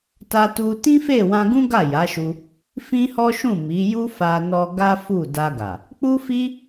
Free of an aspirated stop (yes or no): yes